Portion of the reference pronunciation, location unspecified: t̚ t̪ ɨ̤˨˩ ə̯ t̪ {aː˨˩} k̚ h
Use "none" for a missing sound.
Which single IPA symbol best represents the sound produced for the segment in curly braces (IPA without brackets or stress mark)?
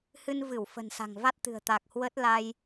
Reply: aː˨˩